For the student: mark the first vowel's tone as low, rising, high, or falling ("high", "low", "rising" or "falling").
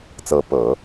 rising